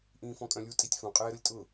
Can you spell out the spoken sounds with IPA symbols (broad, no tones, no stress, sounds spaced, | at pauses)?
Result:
ʔ ĩː f ɔ̃ kʼ œ̃ lʲ u tʼ i tʲ f ũ qʼ ɛː ɾ ʊ lʲ tʼ ʊ